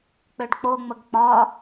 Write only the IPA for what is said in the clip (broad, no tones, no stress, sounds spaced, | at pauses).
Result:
k͡p ø ɖ k͡p o ŋ͡m ə ɡ k͡p ɒ